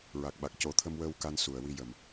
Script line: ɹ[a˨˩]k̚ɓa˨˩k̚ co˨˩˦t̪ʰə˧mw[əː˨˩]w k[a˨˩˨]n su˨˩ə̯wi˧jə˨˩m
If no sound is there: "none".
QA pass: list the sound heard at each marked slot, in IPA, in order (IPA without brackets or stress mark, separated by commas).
a˨˩, əː˧, a˧